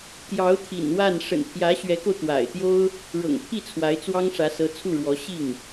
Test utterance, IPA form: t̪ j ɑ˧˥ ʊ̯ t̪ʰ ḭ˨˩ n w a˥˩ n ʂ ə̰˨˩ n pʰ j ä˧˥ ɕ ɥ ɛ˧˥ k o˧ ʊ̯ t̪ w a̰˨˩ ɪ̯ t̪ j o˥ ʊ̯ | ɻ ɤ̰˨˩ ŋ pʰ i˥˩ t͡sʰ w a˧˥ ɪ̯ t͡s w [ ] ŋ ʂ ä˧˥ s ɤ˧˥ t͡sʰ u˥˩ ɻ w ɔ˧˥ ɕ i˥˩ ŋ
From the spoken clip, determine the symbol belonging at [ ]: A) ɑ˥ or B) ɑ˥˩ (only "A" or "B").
A